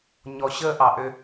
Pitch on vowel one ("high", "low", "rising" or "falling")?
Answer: low